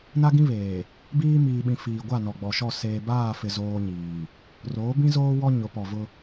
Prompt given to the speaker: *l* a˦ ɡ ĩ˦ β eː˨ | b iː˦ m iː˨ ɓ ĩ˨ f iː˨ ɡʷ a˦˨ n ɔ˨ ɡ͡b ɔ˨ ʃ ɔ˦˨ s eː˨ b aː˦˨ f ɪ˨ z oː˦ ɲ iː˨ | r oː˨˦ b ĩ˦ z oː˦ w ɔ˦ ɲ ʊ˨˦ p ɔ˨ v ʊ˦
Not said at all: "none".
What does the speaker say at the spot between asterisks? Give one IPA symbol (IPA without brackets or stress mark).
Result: n